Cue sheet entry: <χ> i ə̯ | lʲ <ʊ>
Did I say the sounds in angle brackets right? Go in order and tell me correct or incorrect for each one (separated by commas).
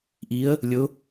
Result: incorrect, correct